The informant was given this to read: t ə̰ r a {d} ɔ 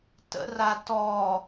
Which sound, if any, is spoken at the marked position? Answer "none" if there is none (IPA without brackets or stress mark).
t